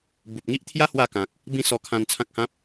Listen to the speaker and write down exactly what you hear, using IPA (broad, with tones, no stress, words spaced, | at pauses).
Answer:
bu˨p̚ŋi˦ʔt̪ʰja˦ hwa˥˧kã˨k̚ | bĩ˦sɔ˧kʰã˧n t͡sʰã˦k̚hã˦p̚